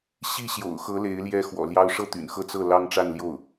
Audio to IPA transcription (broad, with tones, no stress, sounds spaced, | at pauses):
ɕ i˥˩ ɕ j o̰˨˩ ʊ̯ x ɤ˧˥ l e˧˥ ɪ̯ l j ɛ˥ x w ɔ̰˨˩ l j ɑ˥ ʊ̯ ʂ ɤ˥˩ t̪ y̰˨˩ n x ɤ˥˧ t͡s ɤ˥˩ l ɑ˥ ŋ ʈ͡ʂ a˥˧ n l j o˥˩ ʊ̯